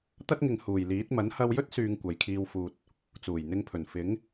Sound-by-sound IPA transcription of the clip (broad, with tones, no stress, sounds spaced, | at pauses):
t̪ ɐ˥ t̚ ŋ ɪ˨ ŋ h uː˨˩ j l iː˨˥ t̚ m ɐ˨˥ n h ɐ˧ w j ɵ˥ t̚ s yː˨ ŋ kʷ ɐ˨ j kʰ iː˧ w f uː˨ t̚ | t͡s uː˨˩ j n̪ ɪ˧ ŋ pʰ ɵ˨˩ n f ɪ˨˥ ŋ